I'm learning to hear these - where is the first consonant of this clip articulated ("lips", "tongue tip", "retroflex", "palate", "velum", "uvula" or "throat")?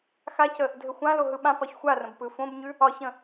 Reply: velum